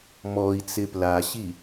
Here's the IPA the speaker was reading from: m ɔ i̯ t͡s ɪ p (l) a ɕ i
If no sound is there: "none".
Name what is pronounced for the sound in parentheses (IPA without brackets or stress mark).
l